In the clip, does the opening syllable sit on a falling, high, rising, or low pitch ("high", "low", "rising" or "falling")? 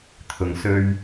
low